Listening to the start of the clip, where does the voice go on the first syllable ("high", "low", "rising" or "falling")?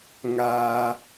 high